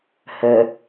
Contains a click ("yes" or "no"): no